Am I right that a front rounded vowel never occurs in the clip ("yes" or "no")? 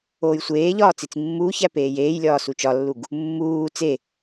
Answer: yes